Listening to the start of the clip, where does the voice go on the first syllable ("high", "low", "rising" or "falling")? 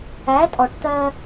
rising